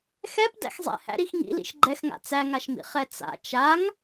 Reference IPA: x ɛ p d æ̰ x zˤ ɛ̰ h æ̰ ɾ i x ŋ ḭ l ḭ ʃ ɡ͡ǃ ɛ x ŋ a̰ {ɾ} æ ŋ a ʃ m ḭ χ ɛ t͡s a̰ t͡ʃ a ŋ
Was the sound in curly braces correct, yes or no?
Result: no